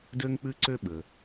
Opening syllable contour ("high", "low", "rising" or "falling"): high